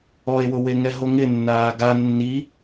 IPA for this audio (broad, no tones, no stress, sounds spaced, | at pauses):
ɔ e̯ w ʊ w e ŋ ɛ ɦ o ŋ ɪ nː aː ɡ a nː i